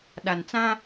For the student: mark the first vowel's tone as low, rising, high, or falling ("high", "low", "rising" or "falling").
low